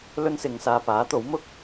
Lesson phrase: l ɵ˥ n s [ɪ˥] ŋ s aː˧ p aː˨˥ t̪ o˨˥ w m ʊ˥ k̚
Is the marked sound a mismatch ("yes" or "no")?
yes